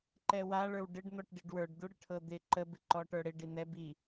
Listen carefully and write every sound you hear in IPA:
ǃ ɛ w a ɭ ə˞ w ɖ ɪ ɖ n̪ ɔ ʈ ɖ i ɖ w ə˞ ɖ d̪ u ɽ ɪ ʈʰ ɤ d̪ ɪ ǃ ə b ɪ ǃ ɔ ʈ ə˞ ɽ ɪ ɖ i n̪ ɛ b i

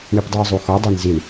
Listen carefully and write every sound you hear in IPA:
ɳ i p dˤ u ə̯ zˤ u x ɔ dˤ i n z i ɳ

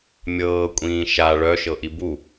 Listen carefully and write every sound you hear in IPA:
mʲ ɤː kʷʼ ĩː ʃ a ɭ œ ʃ ɤ ʔ i b u

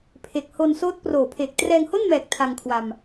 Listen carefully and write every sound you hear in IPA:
pʰ e˨˩ k̚ h o˧ n s oː˦˥ t̚ p r oː˨˩ pʰ eː˨˩ k̚ t r ɛː˧ ŋ h o˥˩ n m ɛː˨˩ k̚ tʰ a˧ ŋ kʰ w a˧ m

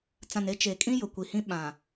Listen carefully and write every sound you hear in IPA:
t͡s ã˨ n e˦ t͡ʃ e˨ kʼ ĩ˦ j ʊ˨ kʷ i˨ h ĩ˦ ɓ ã˨

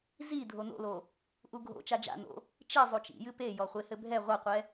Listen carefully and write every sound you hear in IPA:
z i dʱ o n o̰ l o | ʔ u ɡʱ o̰ t͡ʃ a d͡ʒ a̰ n o̰ | t͡ʃ i zˤ u t͡ʃ ḭ j ɨ p e j ɔ χʷ e h ɘ bʱ ɛ ʁʷ ɐ qʷ ɛ

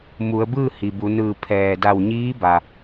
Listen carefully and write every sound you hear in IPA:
m u˩˧ ə̯ b ɯː˥˨ h i˩ b u˩˧ n ɯː˧˩ pʰ ɛː˩ d a˧˩ w ɲ iː˧˥ b a˧

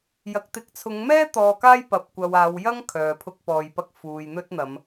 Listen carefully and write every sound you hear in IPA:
j ɐ˨ k̚ t̪ ɪ˨˥ k̚ t͡sʰ ʊ˨˧ ŋ m ɛː˥ t̪ ɔː˧ k aː˥ j p ɐ˨ p̚ kʷ ɐ˨ w aː˨˧ w j ɐ˥ ŋ kʰ œː˨ pʰ ʊ˥ k̚ p ɔː˧ j p ɐ˥ k̚ f uː˨ j n̪ ɵ˥ t̚ n̪ ɐ˨˧ m

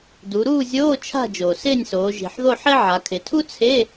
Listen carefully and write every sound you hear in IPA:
d u˩˧ ɾ uː˥˨ zʲ oː˧˥˧ t͡ʃʰ a̤˥˨ d͡ʒ oː˩ s ɪː˥˨ nʲ s oː˩˧ ʒ i̤˩ ħ ð o˥˨ ħ e˥ ʕ a˩˧ kʰ ɪ˩˧ tʰ u˥ t͡sʰ e˧˥˧

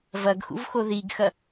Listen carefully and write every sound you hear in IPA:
v ɐ ɡ x ṵ v x o ð i ɡ x ɐ

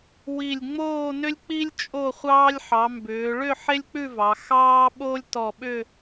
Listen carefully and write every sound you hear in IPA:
w i˧˩ lʲ ŋ͡m oː˥˧ n ʏ˥ lʲ k͡p i˥ lʲ t͡ʃʼ o˥˧ χʷ ɑː˥ lʲ ħ ɑ˩˧ m b ʏː˩˧ ɭ ʏ˥˧ ħ e˥ lʲ k͡p ʉ˥˧ v ɑ˩˧ x ɑː˥ ɓ oː˥ lʲ t ɔ˧˩ ɓ ʏ˥˧

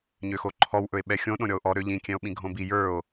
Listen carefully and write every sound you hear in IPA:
ɲ ø x o ǃʰ ɔ w ʔ ɵ e̯ ɓ ɛ xʲ õ ɗ õ ɾʲ ɔ o̯ ʔ ɔ ɾ ø ʎ ĩ kʲ ɛ̃ o̯ ɓ ĩ ɡʱ õ b i j ə˞ o̯

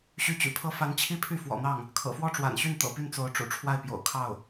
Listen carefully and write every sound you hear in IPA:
ɕ y˧˥ t͡ɕ y̰˨˩ pʰ ɤ˥ f a˧˥ n t͡ɕʰ i˥ pʰ y˥˩ f w ɔ̰˨˩ n̪ ɑ˥˩ ŋ | kʰ ɤ̰˨˩ f w ɔ˥˩ ʈ͡ʂ w a̰˨˩ n ɕ y˥˩ n t̪ ɤ̰˨˩ p y˥˩ n t͡s o˧˥ ʊ̯ ʈ͡ʂ ṵ˨˩ ʈ͡ʂʰ w a˥˩ ɪ̯ p j o̰˨˩ ʊ̯ kʰ ɑ˥˩ ʊ̯

